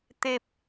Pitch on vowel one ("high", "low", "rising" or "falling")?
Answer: low